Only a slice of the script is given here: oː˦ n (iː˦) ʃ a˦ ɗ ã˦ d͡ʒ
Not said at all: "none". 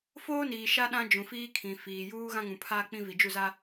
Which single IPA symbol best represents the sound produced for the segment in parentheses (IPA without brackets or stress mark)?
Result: iː˨